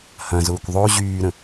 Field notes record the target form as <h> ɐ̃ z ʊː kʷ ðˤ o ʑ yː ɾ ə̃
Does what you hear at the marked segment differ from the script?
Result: no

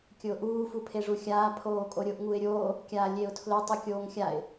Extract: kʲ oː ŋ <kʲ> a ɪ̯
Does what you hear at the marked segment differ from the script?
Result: yes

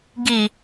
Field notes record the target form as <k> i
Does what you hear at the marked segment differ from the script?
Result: yes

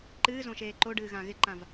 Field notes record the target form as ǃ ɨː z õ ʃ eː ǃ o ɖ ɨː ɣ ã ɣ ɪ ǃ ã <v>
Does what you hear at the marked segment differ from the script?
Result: no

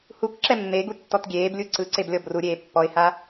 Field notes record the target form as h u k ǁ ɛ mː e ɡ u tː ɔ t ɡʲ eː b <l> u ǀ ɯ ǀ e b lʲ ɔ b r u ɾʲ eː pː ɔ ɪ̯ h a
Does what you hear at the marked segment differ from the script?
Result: yes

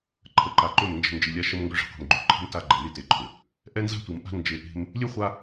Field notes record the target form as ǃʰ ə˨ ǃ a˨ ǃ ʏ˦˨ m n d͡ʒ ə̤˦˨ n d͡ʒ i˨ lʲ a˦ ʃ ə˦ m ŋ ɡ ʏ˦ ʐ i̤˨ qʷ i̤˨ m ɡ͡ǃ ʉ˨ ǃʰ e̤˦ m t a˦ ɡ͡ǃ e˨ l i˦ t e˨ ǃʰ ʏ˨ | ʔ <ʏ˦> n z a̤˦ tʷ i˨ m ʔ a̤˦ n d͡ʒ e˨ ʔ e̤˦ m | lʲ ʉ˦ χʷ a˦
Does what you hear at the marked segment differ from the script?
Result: yes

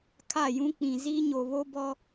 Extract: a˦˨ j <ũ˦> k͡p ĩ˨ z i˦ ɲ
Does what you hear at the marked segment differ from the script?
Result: no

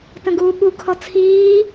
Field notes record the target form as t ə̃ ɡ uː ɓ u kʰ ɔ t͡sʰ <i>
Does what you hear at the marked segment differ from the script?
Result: yes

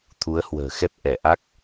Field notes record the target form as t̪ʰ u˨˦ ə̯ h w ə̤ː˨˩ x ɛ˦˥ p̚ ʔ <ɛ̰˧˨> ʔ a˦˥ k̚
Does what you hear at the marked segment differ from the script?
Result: yes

